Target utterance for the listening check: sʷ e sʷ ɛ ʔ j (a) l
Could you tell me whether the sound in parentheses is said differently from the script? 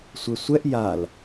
no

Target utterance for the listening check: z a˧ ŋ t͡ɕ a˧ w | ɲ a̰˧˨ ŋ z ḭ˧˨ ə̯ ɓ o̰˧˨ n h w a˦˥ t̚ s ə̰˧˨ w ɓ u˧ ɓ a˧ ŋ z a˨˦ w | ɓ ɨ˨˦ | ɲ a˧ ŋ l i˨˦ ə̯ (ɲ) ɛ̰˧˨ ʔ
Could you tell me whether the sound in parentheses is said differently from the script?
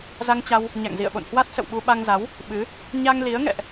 yes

